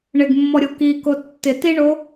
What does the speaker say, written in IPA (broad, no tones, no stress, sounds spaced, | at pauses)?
ɳ ɪ ɡ mː ɔ ɾʲ o k i k o tː ɪ t i ɳ o